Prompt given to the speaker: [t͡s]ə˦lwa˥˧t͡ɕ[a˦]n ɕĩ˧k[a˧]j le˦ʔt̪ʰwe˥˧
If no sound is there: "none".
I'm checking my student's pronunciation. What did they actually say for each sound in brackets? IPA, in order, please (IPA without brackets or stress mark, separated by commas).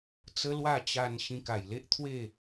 t͡s, a˧, a˨˩